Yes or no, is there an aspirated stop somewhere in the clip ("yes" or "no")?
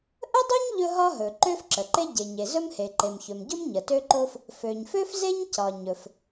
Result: no